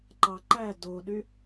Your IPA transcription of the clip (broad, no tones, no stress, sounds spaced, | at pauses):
ǃ ɑ ǃ æ d o ɗ y